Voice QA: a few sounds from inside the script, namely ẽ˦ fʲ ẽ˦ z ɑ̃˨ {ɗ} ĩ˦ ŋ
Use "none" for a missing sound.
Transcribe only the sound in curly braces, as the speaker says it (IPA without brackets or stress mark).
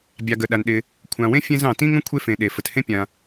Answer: t